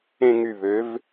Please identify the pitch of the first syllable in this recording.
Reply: falling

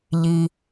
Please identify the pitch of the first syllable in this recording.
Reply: low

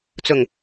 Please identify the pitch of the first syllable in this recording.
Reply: low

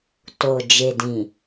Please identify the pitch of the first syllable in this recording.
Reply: low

